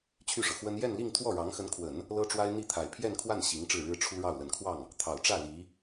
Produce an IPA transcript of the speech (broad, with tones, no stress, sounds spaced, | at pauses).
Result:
t͡ɕʰ y˥˩ ʂ ɤ˩ x w ə˥ n j ɛ˥˧ n l i˥˧ ŋ t̪ʰ w ɔ˥˩ ɻ ɑ˧˥ ŋ x ə˧˥ n kʰ w ə˨˩˦ n | l ɤ˥ ʈ͡ʂ w a˥ ɪ̯ n̪ i˥˩ t̪ʰ a˨˩ ɪ̯ pʰ j ɛ˥˧ n kʰ w a˥˩ n ɕ i˧˥ ŋ ʈ͡ʂ ɻ̩˥˩ ɻ ɻ̩˥ ʈ͡ʂʰ u˥ ɻ ɑ˥˩ ʊ̯ l ə˨˩ n kʰ w ɑ˥˩ ŋ | t̪ʰ ɑ˨˩ ʊ̯ ʈ͡ʂ ä˥˩ l i˧˥